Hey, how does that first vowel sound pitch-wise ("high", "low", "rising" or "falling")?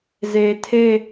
low